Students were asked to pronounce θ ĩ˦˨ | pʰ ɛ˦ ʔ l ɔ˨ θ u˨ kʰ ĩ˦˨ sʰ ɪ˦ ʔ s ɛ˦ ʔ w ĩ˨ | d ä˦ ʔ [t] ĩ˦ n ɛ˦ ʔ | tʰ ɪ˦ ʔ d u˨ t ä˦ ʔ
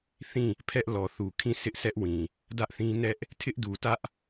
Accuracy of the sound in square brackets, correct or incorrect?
incorrect